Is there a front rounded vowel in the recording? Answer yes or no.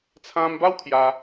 no